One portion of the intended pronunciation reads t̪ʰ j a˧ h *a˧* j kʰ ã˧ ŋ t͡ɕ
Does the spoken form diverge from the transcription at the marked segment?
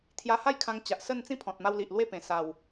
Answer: yes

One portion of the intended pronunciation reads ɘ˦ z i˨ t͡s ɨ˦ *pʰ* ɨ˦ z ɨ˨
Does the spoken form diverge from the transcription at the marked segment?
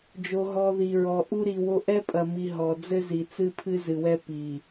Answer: no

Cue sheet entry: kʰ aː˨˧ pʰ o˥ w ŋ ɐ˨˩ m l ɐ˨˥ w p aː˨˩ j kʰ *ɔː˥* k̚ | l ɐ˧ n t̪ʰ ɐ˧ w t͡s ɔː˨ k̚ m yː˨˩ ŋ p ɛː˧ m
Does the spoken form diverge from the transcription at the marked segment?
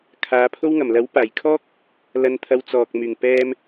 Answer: no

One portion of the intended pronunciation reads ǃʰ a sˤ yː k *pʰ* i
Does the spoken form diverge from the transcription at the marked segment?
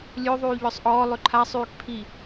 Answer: no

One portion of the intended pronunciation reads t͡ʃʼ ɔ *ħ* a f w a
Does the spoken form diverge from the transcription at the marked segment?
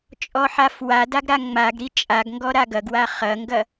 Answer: no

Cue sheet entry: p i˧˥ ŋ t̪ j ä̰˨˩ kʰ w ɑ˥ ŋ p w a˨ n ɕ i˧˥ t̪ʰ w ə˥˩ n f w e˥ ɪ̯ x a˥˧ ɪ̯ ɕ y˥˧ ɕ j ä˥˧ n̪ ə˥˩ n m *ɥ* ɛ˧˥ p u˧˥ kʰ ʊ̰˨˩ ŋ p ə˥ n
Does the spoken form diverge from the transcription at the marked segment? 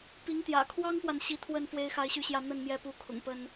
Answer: yes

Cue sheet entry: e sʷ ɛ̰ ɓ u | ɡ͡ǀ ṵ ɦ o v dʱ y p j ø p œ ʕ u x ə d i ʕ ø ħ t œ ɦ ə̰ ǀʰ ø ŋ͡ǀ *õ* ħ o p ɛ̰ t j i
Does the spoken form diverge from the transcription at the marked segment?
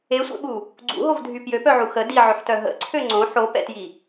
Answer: no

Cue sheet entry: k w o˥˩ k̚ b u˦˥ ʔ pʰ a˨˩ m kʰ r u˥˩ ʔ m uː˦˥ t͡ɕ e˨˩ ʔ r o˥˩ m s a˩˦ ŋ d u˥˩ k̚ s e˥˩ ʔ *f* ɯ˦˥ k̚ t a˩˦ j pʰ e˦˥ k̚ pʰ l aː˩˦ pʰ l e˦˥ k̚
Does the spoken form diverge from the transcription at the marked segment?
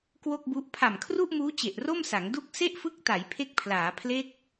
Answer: no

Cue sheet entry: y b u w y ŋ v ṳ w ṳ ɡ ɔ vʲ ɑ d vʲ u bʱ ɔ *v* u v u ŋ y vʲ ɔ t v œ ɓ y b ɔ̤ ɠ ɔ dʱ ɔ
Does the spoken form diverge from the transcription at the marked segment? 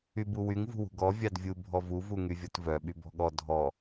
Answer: no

